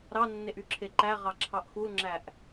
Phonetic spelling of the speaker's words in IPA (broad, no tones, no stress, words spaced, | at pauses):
ɾɑnːeʔ yǁʰeǃæʁɑ ǁʰɑʔxulŋ͡ǁæʔ